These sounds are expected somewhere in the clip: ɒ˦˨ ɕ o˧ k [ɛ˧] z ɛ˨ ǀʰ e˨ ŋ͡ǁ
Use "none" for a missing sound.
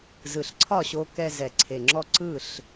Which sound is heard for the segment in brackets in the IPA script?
ɛ˧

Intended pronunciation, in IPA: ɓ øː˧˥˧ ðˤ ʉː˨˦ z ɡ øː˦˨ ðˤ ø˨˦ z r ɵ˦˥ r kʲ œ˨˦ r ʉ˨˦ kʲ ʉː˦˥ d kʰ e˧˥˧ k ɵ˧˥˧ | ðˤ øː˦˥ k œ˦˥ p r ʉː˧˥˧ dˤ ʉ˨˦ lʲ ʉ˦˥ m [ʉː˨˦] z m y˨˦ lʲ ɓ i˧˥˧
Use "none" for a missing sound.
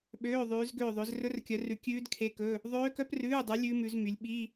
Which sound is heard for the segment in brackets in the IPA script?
ʉ˨˦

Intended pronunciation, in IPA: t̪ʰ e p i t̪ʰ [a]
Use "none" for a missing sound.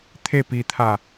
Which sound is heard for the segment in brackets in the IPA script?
a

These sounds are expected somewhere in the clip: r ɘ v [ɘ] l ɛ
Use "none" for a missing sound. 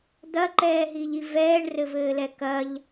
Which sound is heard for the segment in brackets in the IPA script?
ɘː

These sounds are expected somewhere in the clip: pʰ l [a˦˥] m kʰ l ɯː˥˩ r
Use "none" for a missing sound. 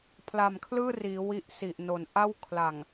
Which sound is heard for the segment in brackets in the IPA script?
a˨˩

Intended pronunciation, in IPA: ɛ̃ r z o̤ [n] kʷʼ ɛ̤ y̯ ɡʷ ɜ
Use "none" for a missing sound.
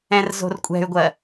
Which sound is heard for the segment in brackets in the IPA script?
r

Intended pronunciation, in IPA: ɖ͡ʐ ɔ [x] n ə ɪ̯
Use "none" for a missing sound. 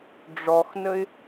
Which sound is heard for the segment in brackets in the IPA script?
x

